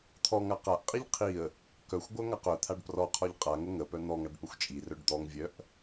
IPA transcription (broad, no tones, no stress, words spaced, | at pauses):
t̪ʰɔŋa qaʔqʼiʎ qʰiə̯ | kœxʷɡʷœ ŋaqœt̪ʰaɖ prɔqʰɔʎ qʼaŋə ŋəpœ n̪ɔŋaɖ pəxʷt͡ʃʼirœɖ d̪ɔŋvʲœʔ